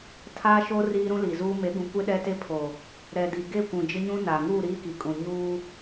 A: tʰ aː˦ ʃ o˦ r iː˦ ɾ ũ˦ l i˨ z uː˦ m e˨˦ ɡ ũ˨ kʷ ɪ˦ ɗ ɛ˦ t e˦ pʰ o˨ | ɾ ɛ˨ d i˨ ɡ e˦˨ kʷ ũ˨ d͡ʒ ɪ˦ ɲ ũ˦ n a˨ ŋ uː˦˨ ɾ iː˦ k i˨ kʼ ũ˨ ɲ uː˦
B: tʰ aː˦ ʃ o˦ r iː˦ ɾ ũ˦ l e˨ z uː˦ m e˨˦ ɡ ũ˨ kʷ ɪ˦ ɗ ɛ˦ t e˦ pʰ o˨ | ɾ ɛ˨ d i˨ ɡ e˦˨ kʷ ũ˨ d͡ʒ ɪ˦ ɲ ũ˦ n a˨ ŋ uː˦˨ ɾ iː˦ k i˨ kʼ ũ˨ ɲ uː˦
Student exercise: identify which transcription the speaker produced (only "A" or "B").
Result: A